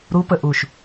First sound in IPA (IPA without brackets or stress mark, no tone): ɾ